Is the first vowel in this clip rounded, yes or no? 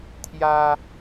no